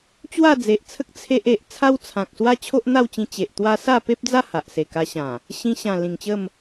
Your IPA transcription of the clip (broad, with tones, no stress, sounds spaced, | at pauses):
t͡ɕ w a˥˧ d͡z e˨ ʔ t͡sʰ ə˦ k̚ t͡sʰ e˦ ʔ e˨ ʔ t͡sʰ a˦ w t͡sʰ ã˨ k̚ s w a˦ t͡ɕʰ o˦ ʔ n̪ a˥˧ w t͡ɕ ĩ˧ t͡ɕ e˨ ʔ t̪ w a˦ s a˥˧ p e˦ p̚ d͡z a˥˧ h a˨ ʔ s e˨˩ k a˧ ɕ ã˨˩ | ɕ ĩ˧ ɕ ã˨˩ l ĩ˨˩ ŋ t͡ɕ ə˥˧ m